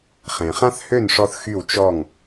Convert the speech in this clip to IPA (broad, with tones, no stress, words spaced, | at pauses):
χẽ˩χã˥θhø˥˩nʂɔ˧θ xy˥˩w t͡ʃɔ˥˩ŋ